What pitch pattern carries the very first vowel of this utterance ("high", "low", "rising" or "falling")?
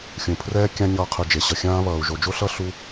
low